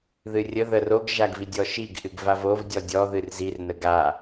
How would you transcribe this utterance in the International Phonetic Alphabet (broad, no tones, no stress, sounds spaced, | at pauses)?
ð ɨ rʲ ə ð ə r o ɡ ʒ a ɡ v i dʲ ɔ ʃ i ɡ ʔ ɨ ɡ v a v o v dʲ ɔ dʲ ɔ ð ɨ r z i r n ə ɡ a